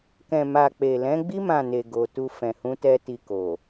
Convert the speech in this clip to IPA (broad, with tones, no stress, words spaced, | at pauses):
kɛ̃˨ma˨ k͡pe˨lɛ̃˨˦ ɡ͡bi˦ mã˦˨ne˨ɡo˨tu˧ fɛ̃˨hũ˨˦tɛ˧ ti˧ko˨